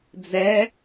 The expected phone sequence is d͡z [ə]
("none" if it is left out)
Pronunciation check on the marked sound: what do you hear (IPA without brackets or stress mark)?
ɛ